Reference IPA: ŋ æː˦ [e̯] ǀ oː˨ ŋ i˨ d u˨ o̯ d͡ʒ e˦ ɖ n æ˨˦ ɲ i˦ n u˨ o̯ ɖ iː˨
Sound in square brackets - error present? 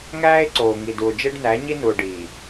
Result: no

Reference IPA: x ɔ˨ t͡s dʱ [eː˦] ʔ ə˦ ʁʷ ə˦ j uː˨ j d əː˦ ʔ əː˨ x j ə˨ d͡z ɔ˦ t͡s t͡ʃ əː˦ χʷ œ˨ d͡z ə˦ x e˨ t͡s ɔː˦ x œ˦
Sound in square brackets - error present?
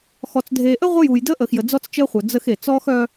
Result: yes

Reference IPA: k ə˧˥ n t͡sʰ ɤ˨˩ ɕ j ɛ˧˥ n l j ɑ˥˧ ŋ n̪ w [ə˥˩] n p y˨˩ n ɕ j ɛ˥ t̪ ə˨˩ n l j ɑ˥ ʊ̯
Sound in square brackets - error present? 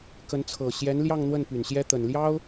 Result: no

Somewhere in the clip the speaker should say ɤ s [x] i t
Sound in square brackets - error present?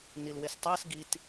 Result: yes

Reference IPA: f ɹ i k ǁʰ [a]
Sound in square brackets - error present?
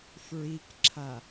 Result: no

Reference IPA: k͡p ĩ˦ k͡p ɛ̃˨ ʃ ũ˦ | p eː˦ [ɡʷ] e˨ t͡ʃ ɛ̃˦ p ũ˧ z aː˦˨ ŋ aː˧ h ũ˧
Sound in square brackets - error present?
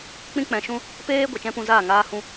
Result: no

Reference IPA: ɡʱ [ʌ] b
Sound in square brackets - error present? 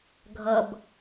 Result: no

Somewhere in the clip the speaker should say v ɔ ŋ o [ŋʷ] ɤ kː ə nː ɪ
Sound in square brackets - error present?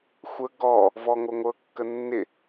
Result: no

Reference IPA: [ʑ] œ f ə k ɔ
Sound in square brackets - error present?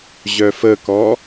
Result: no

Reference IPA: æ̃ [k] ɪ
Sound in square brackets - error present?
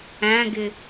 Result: yes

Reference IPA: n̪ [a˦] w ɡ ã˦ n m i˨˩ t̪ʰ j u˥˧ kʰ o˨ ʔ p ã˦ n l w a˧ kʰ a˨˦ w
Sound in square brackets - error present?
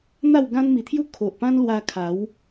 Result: yes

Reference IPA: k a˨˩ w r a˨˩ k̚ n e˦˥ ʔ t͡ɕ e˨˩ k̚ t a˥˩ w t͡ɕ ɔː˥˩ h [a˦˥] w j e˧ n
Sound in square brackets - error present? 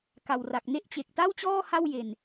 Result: yes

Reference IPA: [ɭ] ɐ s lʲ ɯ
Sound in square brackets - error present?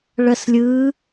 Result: no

